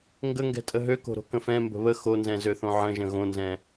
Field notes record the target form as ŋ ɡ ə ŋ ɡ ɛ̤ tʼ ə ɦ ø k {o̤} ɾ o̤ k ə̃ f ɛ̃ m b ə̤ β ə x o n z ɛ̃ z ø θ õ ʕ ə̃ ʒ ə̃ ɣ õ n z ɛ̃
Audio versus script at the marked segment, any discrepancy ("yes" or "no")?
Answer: no